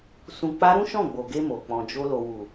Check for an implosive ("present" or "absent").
absent